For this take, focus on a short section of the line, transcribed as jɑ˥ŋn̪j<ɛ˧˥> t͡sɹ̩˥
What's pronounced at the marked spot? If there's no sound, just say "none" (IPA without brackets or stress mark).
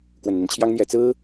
ɛ˧˥